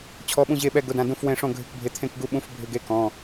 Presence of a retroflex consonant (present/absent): present